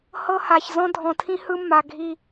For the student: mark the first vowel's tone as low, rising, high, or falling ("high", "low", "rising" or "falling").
high